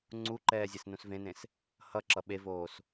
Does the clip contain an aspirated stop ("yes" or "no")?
no